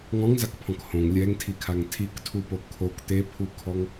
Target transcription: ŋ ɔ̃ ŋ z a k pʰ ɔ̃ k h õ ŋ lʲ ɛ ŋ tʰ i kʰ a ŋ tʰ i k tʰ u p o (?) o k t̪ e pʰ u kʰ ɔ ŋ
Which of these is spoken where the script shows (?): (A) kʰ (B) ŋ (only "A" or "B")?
A